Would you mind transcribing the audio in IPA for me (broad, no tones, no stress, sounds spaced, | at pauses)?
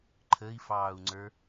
ǃʰ ə i̯ f ɑː u̯ ŋ͡ǀ ə˞